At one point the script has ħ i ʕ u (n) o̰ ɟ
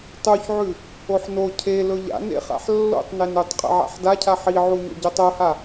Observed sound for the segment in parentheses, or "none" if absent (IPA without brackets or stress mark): ɲ